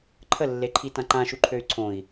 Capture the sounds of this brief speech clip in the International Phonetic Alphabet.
ǃʰ ə lː e ǃʰ i t ã ǃ ã ʃ u ǃʰ ø y̯ ǀʰ õ i̯

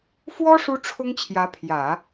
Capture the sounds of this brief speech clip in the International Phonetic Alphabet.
f w ɔ˥ ʂ u˥ ʈ͡ʂʰ ʊ˥ ŋ t͡ɕʰ j ä˧˥ pʰ j ä˨˩˦

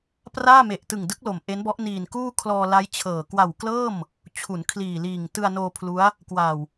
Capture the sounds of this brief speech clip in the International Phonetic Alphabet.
p r aː˥˩ m e˨˩ ʔ t ɯ˨˩ ŋ d ɯ˦˥ k̚ l o˨˩ m ʔ e˦˥ n b ɔ˦˥ ʔ n iː˨˩ n k uː˥˩ kʰ l ɔː˧ l a˦˥ j t͡ɕʰ ɤː˨˩ k w a˨˩ w k l ɤː˥˩ m | t͡ɕʰ u˩˦ n kʰ l iː˨˩ l iː˨˩ ŋ t ɯ˧ a̯ n oː˧ pʰ l u˦˥ a̯ | k w a˨˩ w

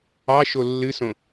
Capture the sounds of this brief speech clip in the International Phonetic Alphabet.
ɑ ʃ o lː ɨ s õ

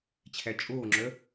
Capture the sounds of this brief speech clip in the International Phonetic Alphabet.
t͡ɕʰ æ t͡ʃʼ oː ŋ͡ǁ œ

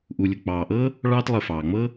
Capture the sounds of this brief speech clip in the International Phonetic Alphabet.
ʔ u˨ lʲ ʊ˨ k͡p ɑː˨ ʔ ɤ˥ | ɭ ɑː˦ t lˠ ə˨ f ɑː˩ ŋ͡m ɤ˥

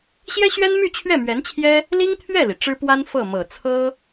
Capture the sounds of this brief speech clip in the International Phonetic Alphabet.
ɕ j ɛ˥ ɕ ɥ ɛ˥ n m y˥˧ t͡ɕʰ ɥ ɛ˥˩ m ɥ ɛ˧˥ n t͡ɕʰ j ɛ˥ | l i˥ ŋ t̪ʰ ɥ ɛ˥˩ l i˩ ʈ͡ʂ ɻ̩˥ p w a˥ n f ɤ˥˩ m ɤ˨˩ t͡sʰ ɤ˥

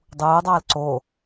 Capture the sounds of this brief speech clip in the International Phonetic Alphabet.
dˤ uː dˤ aː l ǀ o

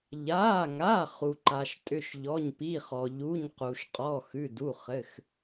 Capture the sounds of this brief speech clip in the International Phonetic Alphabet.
ʎ aː˩˧˩ ŋ a˩˧˩ χ u˩ ǃ a˩ ʃ tʼ ʏ˩˧˩ ʃ ʎ ɔ˩˧˩ ɲ p i˩˧˩ χ ɔ˩ ʎ u˩˧˩ ɲ q u˩ ʃ qʼ ɔ˩˧˩ x ʉ˩˧˩ d u˩˧˩ χ ɘ˩˧˩ x

